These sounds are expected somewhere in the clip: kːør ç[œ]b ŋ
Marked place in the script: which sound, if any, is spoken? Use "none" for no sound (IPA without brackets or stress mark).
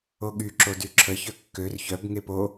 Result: œ